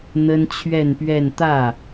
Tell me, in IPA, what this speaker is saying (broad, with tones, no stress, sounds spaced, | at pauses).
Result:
n̪ ə˥ n t͡ɕʰ ɥ ɛ˥˧ n p ɥ ɛ˥˧ n t̪ ä˥˩